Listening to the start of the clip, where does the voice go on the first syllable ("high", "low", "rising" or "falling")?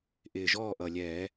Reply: low